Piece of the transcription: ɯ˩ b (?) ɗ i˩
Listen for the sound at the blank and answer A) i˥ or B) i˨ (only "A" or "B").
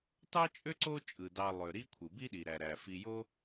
A